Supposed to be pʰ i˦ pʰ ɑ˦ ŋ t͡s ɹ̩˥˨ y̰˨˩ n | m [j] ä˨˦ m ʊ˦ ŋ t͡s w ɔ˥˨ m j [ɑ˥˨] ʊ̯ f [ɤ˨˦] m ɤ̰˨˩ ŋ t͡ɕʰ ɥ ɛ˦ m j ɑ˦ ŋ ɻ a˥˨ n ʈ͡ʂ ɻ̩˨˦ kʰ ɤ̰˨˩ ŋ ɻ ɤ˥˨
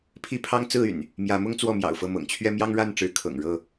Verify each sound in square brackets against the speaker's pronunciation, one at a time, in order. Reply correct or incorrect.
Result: correct, incorrect, incorrect

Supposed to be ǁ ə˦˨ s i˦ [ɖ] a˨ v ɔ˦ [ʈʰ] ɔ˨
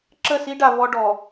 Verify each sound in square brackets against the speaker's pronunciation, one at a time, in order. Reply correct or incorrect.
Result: correct, incorrect

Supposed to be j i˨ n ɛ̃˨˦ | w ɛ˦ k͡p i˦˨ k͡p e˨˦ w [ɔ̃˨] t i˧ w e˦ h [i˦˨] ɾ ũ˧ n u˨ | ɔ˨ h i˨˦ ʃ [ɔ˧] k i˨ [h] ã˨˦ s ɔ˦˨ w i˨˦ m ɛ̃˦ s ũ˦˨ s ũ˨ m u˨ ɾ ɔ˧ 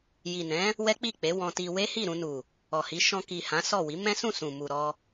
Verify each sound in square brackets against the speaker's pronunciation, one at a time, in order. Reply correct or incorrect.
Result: incorrect, correct, incorrect, correct

